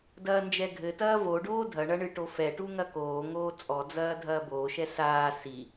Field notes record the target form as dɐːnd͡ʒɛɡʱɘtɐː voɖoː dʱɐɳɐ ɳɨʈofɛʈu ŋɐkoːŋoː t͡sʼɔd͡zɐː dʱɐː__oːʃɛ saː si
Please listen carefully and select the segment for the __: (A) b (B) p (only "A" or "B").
A